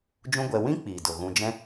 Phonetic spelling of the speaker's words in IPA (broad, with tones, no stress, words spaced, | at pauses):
d͡ʒũ˦ɡʷɛ˧ wĩ˦ k͡piː˨do˨ ɣũ˧ d͡ʒɛ̃˦